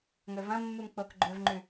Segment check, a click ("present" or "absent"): present